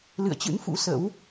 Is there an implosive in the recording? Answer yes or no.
no